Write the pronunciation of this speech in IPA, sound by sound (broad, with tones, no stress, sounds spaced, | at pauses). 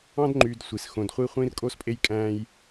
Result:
ɑ̃˦ d ŋ͡ǃ yː˨ d sʷ i˩ s x õ˨ d χʷ i˦ χʷ ĩ˦ r kʼ o˦ s pʼ e˦ j kʼ æ̃ː˦ j